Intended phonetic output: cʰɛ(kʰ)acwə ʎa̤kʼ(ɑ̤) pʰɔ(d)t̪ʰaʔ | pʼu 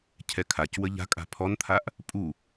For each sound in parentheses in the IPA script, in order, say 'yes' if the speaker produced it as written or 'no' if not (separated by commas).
yes, no, no